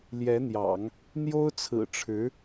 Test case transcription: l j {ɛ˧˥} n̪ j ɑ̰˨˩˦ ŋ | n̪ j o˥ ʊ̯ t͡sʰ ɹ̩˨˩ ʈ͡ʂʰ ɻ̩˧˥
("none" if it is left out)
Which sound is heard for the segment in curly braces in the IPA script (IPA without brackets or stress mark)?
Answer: ɛ˧˥